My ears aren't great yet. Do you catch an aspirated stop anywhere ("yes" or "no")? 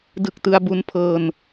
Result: yes